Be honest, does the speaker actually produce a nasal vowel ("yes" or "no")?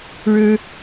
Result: no